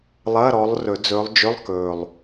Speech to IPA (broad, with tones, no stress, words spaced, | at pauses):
lˠɐː˧˥˧ɾɔ˨˦lˠ rɵ˨˩˦d͡zɵː˨˦lˠd͡ʒɵ˧˥˧lˠ kɵː˨˩lˠ